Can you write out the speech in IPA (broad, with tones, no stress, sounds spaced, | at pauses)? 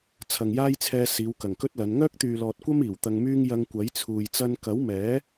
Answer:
t͡sʰ ɐ˨ ŋ j aː˥ j t͡sʰ ɛː˧ s iː˨˧ w k ɐ˨˩ ŋ k ɵ˥ t̚ l ɐ˨˧ n ŋ œː˥ k̚ t̪ yː˨ l ɔː˨ t̚ kʷ ɐ˥ m iː˨˩ w t̪ ɐ˧ ŋ m yː˥ ŋ j ɐ˧ ŋ kʷ ɐ˨˥ j t͡sʰ uː˨ j t͡s ɐ˧ n k ɐ˨˥ w m ɛː˨˥